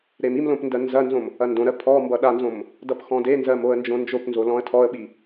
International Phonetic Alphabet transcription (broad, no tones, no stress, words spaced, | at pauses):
ɾemimlõp ndɜnzɐnzõm | ɐndõɾɜ pʰɔ mbʌɗanzõm | dʌpxɔ̃denzɜm oə̯nd͡ʒõnd͡ʒopnzo lɔ̃ə̯tʰɔə̯ɓi